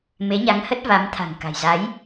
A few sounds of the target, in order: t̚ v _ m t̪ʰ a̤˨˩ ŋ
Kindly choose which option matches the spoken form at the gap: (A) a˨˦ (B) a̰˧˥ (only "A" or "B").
A